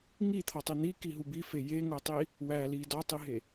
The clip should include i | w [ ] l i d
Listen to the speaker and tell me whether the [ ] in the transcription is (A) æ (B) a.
A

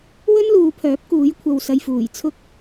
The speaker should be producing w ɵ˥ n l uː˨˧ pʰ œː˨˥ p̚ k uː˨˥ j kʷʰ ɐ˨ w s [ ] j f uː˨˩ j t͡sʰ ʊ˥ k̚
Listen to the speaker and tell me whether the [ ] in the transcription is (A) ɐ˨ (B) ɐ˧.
A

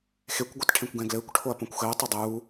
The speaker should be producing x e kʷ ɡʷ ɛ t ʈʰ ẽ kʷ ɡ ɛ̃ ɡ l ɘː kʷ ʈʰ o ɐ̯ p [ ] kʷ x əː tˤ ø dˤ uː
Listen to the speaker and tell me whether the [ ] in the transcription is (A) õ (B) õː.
A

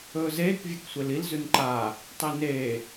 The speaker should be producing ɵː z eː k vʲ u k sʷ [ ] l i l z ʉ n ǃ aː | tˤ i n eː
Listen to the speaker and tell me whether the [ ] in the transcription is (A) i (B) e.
B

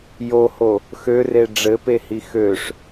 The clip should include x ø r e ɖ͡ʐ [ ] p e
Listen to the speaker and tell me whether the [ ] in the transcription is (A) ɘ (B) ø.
A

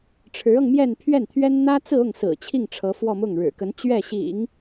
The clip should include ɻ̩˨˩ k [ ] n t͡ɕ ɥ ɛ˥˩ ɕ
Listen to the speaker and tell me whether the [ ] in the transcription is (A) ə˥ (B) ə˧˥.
B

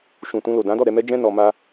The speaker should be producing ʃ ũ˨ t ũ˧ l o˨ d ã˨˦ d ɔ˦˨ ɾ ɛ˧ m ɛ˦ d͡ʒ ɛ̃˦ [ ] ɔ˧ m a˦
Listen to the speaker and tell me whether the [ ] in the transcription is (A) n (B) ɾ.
A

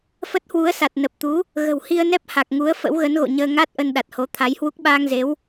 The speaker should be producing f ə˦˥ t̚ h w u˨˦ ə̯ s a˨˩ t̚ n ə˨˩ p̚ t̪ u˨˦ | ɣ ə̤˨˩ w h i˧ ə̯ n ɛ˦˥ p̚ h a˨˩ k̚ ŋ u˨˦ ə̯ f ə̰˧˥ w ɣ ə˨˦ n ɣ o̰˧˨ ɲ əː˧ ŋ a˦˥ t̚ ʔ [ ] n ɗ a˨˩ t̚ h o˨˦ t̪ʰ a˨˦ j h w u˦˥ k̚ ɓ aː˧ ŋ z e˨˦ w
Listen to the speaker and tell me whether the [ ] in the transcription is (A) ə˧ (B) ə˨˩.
A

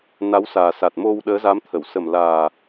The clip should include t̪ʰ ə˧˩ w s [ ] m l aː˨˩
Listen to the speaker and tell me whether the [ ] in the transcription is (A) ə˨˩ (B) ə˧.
A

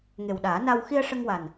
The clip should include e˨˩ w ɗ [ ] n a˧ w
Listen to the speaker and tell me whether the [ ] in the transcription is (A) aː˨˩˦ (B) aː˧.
A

